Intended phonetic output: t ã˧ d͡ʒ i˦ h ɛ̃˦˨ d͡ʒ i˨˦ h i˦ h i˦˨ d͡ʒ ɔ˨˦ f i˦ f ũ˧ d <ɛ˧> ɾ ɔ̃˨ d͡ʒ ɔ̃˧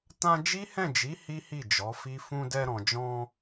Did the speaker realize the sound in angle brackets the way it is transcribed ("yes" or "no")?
yes